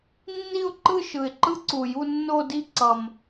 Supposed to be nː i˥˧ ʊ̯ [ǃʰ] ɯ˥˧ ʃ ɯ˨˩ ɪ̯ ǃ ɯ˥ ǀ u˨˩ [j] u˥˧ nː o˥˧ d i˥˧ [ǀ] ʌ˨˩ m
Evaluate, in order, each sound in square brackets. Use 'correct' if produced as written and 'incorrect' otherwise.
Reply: incorrect, correct, correct

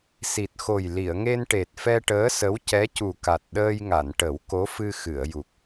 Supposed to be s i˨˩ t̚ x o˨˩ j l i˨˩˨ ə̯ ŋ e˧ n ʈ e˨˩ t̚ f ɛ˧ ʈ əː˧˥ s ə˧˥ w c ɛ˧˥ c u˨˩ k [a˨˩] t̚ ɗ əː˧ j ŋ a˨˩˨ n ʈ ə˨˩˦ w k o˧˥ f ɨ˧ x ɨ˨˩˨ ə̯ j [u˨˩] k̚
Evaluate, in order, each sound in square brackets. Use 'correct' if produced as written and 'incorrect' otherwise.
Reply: correct, correct

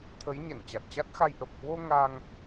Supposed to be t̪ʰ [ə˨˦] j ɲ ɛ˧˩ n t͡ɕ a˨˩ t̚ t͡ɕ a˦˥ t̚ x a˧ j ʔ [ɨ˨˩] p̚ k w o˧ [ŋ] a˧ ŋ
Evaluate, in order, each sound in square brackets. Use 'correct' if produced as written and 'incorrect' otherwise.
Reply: correct, incorrect, correct

